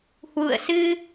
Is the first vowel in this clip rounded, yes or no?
yes